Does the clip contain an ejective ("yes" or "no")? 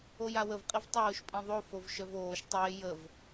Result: yes